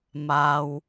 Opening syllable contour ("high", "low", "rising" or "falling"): low